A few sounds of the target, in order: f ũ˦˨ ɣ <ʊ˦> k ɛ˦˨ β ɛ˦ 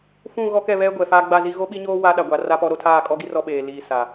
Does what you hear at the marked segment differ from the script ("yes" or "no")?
yes